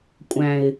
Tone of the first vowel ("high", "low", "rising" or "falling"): low